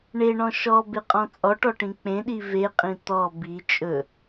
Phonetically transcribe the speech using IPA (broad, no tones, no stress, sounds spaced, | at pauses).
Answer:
ɳ e ɳ ɔ̃ ʃ ɔ b e qʼ ɔ̃ t͡sʼ ɔ ʈ ɔ ʈ ĩ k͡p ẽ ɗ i v e qʼ ĩ t̪ ɔ b i t͡ʃʼ ɵ